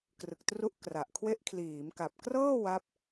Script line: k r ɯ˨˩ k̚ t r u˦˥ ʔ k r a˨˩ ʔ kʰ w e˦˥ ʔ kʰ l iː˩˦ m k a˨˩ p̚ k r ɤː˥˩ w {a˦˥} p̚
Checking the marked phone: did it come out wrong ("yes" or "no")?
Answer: no